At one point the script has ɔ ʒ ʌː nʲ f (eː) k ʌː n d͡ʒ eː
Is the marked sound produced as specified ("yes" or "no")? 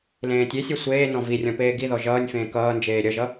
no